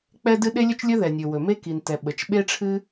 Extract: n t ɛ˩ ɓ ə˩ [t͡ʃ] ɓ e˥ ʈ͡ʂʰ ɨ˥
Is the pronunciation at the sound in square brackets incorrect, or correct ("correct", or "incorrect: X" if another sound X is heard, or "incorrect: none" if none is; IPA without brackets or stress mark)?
correct